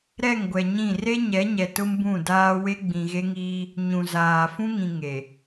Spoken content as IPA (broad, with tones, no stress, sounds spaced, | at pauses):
ɾ ɛ˦˨ ŋ ɡʷ ɛ˨ ɲ ĩ˦˨ r e˦ ɲ ɛ˨˦ ɲ ɛ˨ t ʊ˦ m b ũ˦˨ d aː˦ w e˦ ɡ͡b ĩ˨ ɣ e˦ ŋ iː˦ | ɲ ũ˨ z aː˨ f ũ˦ ŋ ĩ˨ ŋ e˨